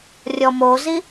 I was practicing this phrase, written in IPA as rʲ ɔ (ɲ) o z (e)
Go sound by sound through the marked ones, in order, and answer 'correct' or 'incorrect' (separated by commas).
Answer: incorrect, incorrect